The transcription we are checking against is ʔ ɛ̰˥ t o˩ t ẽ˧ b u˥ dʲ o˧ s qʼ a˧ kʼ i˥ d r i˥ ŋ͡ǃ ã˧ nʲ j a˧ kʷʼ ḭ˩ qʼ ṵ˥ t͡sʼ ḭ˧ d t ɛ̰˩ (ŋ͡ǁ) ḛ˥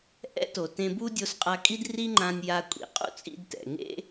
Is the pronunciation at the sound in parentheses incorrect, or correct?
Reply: incorrect